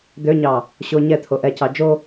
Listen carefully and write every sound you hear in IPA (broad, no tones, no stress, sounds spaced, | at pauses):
d̪ ø ɲ ɑ | ɕ o ɲ ɛ t̪ʰ o ʔ ɛ c ɑ d͡ʒ o